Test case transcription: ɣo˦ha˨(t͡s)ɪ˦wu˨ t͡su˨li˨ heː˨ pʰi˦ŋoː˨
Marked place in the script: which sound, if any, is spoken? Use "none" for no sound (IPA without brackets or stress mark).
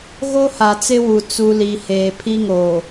t͡s